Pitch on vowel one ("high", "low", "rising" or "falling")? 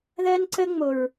high